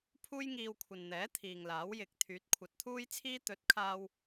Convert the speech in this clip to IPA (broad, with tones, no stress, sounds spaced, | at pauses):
pʰ uː˥ j ŋ iː˧ w kʷʰ ɐ˨ n n̪ ɛː˨˥ t̪ʰ iː˨ ŋ l aː˨˥ w j ɪ˨˥ k̚ t̪ʰ yː˨˥ t̚ kʷʰ ɐ˨˥ t̚ t̪ʰ uː˥ j t͡sʰ iː˥ t̪ ɵ˨˥ t̚ kʰ aː˧ w